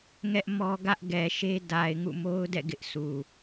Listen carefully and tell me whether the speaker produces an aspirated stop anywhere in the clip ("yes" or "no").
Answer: no